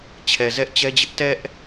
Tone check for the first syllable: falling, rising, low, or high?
low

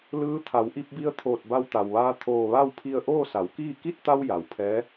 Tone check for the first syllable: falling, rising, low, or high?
rising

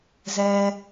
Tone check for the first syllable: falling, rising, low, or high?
low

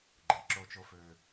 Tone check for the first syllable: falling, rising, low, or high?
low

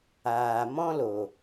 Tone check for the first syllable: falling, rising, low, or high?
low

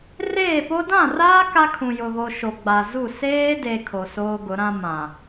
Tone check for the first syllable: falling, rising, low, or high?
falling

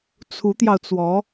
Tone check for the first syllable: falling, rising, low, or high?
rising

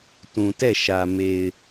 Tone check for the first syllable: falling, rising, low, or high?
low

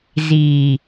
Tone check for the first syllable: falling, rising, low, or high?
low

